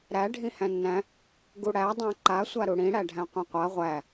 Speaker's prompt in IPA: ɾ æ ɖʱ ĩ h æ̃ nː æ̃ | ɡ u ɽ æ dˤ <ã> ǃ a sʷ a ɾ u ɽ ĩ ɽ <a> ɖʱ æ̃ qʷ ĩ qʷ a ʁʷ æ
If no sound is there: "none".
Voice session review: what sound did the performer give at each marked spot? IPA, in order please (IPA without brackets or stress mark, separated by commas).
æ̃, æ